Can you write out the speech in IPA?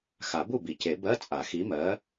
x a˨˩˦ b u˥˩ b i˨˩˦ c e˨˩˦ b ɜ˧˥˧ t͡sʼ a˨˩˦ x i˨˥ m ɜ˨˥

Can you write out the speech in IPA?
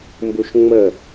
m b u ʃ ŋ͡m ə

